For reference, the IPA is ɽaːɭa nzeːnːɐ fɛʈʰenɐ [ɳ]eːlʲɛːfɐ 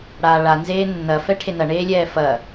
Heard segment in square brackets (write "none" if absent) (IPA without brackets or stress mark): ɳ